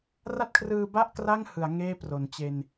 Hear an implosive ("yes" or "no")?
no